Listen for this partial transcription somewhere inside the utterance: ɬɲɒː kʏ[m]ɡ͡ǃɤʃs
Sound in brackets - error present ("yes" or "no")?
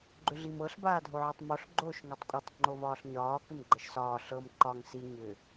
no